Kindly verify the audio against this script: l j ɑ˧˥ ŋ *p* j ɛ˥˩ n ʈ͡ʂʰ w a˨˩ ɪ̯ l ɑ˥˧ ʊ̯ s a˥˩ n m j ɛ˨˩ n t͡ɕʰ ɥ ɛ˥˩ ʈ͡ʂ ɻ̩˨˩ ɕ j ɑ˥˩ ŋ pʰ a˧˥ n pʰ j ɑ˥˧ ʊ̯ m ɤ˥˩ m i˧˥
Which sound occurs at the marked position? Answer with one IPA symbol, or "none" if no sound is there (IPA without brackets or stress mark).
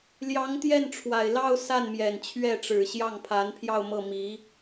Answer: t̪